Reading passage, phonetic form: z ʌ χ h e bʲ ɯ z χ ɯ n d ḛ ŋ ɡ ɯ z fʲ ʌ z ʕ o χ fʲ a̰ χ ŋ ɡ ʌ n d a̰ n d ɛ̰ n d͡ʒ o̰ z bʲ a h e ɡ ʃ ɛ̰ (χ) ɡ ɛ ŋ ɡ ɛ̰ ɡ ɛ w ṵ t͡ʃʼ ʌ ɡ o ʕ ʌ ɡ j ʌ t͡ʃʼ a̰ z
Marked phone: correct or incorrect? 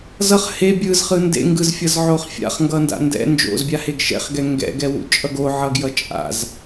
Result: correct